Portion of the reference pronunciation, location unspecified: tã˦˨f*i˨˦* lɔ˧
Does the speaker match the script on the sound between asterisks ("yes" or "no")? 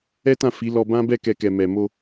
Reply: yes